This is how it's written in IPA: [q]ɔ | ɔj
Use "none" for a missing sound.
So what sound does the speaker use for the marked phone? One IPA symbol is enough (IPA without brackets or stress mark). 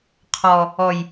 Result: qʰ